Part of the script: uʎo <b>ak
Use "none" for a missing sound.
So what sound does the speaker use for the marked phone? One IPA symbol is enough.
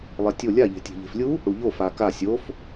f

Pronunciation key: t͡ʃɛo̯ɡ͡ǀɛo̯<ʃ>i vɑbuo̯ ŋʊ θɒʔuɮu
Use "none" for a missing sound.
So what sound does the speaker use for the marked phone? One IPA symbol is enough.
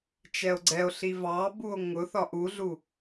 ɬ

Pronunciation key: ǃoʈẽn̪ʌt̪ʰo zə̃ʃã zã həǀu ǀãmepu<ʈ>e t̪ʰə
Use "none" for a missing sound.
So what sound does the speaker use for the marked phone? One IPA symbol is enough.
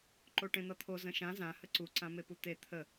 t̪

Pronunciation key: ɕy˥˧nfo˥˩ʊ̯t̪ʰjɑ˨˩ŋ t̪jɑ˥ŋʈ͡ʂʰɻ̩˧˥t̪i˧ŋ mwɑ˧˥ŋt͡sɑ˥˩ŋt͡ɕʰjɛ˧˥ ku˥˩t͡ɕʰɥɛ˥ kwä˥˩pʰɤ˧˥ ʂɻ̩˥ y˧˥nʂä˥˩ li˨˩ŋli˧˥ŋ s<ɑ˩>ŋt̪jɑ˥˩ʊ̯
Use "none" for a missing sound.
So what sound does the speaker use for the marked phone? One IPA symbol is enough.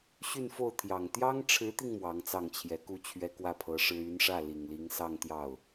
ɑ˥˧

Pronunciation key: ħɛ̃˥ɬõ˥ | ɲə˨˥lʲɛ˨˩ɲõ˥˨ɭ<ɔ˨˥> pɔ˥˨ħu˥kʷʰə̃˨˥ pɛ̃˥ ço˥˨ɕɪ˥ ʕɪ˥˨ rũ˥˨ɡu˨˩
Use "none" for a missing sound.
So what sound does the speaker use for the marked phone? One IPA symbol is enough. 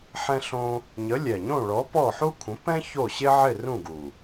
ɔ˨˥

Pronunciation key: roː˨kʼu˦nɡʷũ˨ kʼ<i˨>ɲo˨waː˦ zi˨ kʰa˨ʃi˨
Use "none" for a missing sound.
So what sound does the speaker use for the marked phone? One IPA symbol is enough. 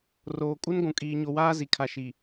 iː˨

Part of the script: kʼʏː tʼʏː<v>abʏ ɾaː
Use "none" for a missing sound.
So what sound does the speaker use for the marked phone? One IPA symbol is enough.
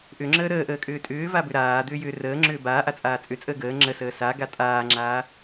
v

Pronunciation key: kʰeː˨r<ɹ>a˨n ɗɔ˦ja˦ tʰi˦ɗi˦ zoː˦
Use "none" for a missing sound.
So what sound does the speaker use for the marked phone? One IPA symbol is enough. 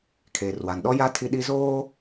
w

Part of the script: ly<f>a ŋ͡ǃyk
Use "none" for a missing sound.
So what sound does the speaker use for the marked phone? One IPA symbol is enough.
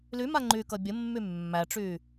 m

